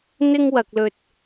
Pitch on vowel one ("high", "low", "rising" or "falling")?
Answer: high